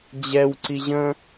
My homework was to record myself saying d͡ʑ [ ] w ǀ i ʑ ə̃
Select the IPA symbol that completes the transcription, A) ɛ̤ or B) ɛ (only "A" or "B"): B